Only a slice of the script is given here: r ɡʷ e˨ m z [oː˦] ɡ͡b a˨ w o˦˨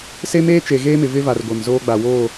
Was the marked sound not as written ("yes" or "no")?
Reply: no